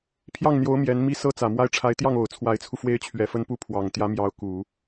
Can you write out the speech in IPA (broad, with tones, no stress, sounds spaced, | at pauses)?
pʰ j ɑ˥˩ ŋ n̪ j o˧˥ ʊ̯ m j ɛ˧˥ n m i˥ s ɤ˥ t͡s ä˨˩ m w a˥˩ ɪ̯ ʈ͡ʂʰ a˧˥ ɪ̯ t̪ j ɑ˥˩ ŋ o˨˩ ʊ̯ t͡sʰ w a˧˥ ɪ̯ t͡sʰ u˧ f w e˥ ɪ̯ t͡ɕʰ ɥ ɛ˧˥ f ə˥ n p u˥˩ pʰ w ɑ˨˩ ŋ t̪ j ä˧˥ m j ɑ˧˥ ʊ̯ k u˨˩˦